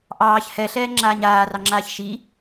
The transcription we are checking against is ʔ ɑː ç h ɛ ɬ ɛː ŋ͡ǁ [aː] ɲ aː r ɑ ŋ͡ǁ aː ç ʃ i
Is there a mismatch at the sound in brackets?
no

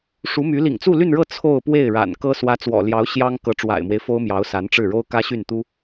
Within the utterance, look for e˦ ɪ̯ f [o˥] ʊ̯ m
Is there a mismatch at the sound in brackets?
no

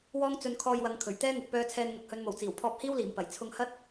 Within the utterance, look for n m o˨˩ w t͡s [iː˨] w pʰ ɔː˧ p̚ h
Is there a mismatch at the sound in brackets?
yes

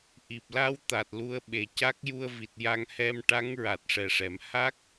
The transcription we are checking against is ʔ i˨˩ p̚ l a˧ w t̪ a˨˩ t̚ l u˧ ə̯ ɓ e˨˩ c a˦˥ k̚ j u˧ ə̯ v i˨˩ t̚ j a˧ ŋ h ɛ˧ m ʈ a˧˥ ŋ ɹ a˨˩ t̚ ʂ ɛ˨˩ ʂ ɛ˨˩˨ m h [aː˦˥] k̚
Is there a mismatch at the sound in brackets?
yes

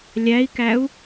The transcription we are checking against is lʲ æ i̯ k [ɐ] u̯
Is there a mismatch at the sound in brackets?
yes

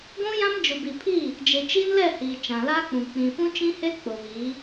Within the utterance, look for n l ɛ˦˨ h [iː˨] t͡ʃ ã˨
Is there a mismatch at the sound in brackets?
no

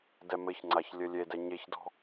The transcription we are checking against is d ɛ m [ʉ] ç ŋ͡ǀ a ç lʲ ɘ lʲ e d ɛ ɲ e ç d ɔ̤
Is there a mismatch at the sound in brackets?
yes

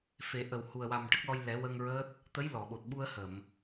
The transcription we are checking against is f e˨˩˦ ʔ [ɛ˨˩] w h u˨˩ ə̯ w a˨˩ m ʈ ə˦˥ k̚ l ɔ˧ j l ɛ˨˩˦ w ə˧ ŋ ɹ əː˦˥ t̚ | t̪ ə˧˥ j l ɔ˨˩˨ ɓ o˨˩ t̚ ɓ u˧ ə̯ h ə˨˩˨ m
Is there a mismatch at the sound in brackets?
yes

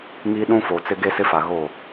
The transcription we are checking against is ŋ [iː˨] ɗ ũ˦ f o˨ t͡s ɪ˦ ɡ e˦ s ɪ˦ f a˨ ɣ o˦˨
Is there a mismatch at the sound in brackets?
yes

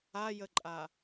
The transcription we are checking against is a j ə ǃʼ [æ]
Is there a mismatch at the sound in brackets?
yes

